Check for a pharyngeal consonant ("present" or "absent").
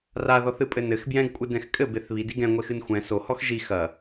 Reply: absent